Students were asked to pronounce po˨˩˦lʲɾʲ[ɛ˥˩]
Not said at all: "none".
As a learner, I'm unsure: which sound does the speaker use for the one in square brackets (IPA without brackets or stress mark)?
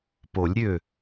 ø˥˩